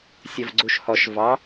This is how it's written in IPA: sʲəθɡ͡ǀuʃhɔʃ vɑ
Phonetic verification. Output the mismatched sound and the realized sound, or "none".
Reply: θ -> v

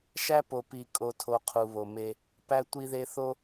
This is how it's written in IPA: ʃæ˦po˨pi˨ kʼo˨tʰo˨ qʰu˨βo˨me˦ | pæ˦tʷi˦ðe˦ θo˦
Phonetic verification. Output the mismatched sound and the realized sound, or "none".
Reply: none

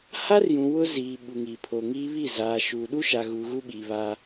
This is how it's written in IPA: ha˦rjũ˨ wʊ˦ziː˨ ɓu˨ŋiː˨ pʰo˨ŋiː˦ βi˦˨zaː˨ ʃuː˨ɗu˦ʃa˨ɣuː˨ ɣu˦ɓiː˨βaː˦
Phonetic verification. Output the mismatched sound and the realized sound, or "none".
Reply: none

